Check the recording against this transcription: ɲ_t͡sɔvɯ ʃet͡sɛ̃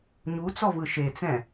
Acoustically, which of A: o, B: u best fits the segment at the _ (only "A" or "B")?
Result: B